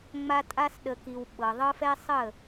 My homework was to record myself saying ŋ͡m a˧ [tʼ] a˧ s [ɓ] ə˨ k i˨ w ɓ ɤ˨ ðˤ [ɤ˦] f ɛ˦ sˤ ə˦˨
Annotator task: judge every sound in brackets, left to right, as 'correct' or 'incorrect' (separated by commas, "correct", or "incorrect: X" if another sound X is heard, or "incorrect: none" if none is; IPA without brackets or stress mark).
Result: correct, incorrect: ɗ, correct